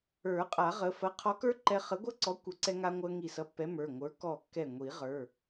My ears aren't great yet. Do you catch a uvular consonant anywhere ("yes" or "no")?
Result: yes